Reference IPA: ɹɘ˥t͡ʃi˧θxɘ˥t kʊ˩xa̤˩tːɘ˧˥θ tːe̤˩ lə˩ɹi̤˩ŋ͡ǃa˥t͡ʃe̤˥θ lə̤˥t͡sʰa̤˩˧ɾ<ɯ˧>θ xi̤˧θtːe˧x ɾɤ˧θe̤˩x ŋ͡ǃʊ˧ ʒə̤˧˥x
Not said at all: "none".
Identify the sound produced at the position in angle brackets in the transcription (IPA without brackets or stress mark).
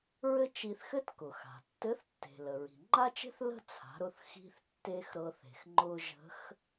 ʊ˧